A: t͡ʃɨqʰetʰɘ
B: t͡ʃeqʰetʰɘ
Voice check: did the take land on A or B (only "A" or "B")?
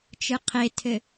A